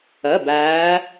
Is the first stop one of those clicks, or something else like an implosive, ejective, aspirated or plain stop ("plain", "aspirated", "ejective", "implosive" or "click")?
plain